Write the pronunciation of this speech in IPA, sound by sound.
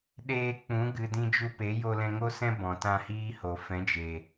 ɗ eː˧ k͡p ũ˨˦ ɡ ɨ˨ d ĩ˧ d͡ʒ u˧ p e˨˦ j o˧ l ɛ̃˧ ŋ o˦ s ɛ̃˦ b ɔ̃˨ t ã˧ h iː˦ h o˨ f ɛ̃˨˦ d͡ʒ e˨

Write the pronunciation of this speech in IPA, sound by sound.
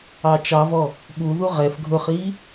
ɑ t͡ʃ ɑ v ɔ | ɓ u ð u ʁ ɛ f ɡʱ ʊ χ i

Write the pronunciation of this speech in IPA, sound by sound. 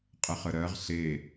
qʼ ɛ χ ə ɾ ɜ ʁ ɬ e

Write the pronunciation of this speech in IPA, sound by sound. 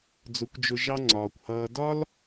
d͡z ʊ˨˦ kʷ d͡ʒ ʊ˧ ʒ ɑ˦ ŋ͡ǀ ɒː˨ kʷ h ʌː˧ d ɒ˦ l

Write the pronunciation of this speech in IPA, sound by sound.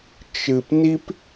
t͡ʃ ɨ˨ p n i˦ p

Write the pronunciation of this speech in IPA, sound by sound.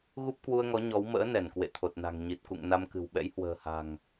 ɣ u˦˥ p̚ k w u˧ ə̯ ŋ ɔ˨˦ ɲ ɔ˨˦ w m ə̰ː˧˥ n ɛ˧˩ n k w ḛ˧˨ t̪ʰ o˨˩ t̚ n a̤˨˩ ŋ ɲ i˨˩ t̚ k ṵ˧˨ ŋ n a˧ m k ɨ̤˨˩ w ɓ ɛ̰˧˥ j h w ə̤ː˨˩ h a̤˨˩ ŋ

